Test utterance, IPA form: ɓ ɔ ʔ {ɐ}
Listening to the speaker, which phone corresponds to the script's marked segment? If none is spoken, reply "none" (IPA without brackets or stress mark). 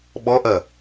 ɐ